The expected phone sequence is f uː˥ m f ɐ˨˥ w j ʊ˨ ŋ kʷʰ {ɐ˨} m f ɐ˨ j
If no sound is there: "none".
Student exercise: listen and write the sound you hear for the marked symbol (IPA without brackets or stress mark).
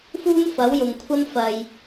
ɐ˥